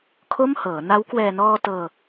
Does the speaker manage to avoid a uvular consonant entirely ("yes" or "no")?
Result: yes